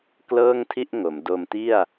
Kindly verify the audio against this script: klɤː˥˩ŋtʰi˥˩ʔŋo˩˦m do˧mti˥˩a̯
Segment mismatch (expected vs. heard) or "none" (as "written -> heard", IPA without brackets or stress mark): none